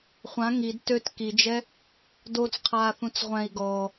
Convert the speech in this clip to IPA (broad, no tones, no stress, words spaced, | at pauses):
χʷã ŋid tøt kid͡ʒɛ | dot͡sqʰaːθũt͡s ʁʷɛ̃i̯ ɡɔ